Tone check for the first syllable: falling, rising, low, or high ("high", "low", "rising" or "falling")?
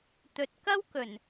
low